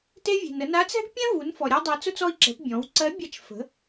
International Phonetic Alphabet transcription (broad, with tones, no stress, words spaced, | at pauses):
te˧vʲe̤˩n ə˩˧na˧˥t͡sɛ̤˥ɡ pʲɛ̃˥ vu˩˧nfɔ˩ ɾʲa˥dˤɛ˧˥t͡sʊ˥t͡sɔ˥i̯ ǁɛ̤˩˧pbʲɔ̃˩˧w ǀɜ˧˥bʲa˧˥t͡ʃ fə̤˩˧